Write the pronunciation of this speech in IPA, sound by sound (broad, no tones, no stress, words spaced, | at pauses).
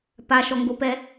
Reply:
paʃɔŋɡopɛ